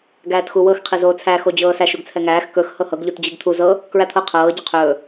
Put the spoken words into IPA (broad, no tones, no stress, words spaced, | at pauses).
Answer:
ɡæːtxuwɤx qʰizoːt͡sʰæ xod͡ʑɤːsæʃ uɡt͡sʰɛŋæːx kɵx hɤhɤɡ ʎutd͡ʑiɡt̪ʰu zɤ | kɹæt̪ʰɤ qʰɤː ɟɵqʰɵː